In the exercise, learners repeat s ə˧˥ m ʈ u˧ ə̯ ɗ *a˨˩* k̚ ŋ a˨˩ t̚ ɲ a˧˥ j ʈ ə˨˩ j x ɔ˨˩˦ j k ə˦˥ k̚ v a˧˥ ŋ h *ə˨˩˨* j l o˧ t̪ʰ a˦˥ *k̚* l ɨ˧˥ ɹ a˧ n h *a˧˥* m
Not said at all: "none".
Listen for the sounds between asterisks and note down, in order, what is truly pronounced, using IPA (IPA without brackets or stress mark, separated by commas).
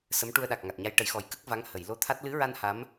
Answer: a˨˩, ə˨˩˨, t̚, a˧˥